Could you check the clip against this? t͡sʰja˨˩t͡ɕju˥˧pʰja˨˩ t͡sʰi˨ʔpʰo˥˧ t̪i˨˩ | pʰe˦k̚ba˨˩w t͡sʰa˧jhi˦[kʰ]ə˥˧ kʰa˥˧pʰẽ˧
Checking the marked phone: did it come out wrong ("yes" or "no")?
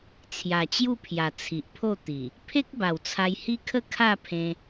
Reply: no